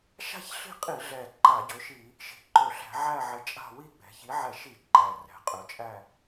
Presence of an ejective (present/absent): present